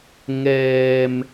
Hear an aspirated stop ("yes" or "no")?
no